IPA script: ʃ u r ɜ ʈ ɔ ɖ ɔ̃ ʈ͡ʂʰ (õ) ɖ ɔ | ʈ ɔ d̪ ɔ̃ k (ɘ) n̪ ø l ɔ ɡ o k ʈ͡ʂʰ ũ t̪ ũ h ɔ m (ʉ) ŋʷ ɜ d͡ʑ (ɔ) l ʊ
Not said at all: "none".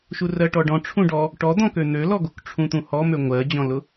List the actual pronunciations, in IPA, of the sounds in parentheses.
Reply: ũ, ø, ø, ɔ̃

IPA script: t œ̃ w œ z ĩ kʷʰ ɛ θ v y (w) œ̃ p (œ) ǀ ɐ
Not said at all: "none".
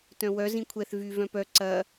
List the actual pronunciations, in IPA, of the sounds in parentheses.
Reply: v, œ

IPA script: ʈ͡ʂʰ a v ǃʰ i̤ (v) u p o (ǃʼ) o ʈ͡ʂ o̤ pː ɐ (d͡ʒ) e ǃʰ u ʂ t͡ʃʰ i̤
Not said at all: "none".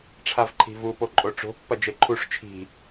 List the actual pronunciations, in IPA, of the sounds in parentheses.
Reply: v, ǃʼ, d͡ʒ

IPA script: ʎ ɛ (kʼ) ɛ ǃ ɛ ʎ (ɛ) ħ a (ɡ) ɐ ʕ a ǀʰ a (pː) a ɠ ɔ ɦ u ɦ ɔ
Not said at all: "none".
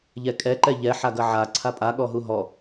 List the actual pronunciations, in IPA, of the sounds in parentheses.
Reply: kʼ, ɛ, ɡ, pʼ

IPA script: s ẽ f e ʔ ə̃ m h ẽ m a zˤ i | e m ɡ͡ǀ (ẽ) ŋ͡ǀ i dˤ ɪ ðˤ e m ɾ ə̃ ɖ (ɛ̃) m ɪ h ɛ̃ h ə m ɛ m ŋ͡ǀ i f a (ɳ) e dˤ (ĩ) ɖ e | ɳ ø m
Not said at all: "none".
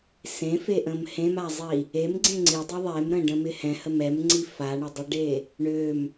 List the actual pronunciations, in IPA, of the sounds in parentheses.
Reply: ẽ, ə̃, ɳ, i

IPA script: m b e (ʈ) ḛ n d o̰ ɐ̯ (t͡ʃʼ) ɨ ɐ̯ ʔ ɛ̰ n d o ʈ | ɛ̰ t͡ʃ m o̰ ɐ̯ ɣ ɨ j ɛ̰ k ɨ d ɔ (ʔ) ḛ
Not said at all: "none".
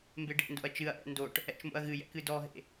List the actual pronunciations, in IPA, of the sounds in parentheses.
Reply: ɖ, t͡ʃ, ɦ

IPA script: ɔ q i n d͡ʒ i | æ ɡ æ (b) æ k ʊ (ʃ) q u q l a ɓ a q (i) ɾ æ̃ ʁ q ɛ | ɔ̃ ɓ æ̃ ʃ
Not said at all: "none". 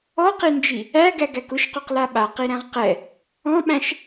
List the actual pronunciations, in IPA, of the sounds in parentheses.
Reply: ɡ, ʃ, i

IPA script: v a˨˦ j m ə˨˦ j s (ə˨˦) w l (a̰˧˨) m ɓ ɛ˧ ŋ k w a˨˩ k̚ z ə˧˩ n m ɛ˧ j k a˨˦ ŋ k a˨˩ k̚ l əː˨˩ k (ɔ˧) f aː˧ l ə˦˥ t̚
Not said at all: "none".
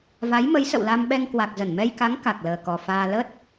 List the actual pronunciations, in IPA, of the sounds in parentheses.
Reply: ə̰˧˨, a˧, ɔ˨˩

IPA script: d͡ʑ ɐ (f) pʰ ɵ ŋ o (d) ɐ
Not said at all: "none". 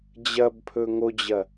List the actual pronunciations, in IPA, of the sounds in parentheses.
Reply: b, d͡ʑ

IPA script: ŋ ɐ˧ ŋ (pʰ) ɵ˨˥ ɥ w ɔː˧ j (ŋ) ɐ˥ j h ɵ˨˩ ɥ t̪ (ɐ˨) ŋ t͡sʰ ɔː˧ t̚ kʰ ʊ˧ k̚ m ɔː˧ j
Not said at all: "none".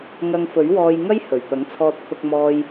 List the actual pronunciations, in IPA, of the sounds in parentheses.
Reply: f, ŋ, ɐ˨˥

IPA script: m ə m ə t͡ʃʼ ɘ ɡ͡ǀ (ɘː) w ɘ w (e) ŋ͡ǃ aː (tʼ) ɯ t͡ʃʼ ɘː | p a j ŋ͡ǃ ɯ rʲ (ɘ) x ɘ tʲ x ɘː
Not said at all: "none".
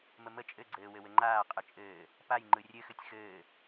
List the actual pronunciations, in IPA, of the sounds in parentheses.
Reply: ɘː, ɘ, qʼ, ɘ

